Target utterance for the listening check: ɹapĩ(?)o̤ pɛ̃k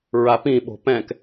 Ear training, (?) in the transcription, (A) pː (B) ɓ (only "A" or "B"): B